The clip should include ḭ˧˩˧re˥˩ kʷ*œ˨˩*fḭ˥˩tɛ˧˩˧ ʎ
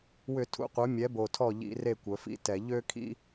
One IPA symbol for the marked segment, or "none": œ˩˧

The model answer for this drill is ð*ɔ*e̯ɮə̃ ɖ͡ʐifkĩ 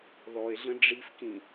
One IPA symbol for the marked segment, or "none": ɔ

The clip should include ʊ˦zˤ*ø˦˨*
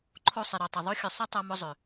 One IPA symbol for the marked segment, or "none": ø˨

